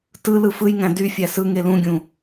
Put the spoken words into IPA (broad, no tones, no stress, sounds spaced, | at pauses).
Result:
t ɯ l ɯ f ɯ j ŋ æ̃ d y fʲ æ s ɯ ŋ e l ũ ɡʲ ũ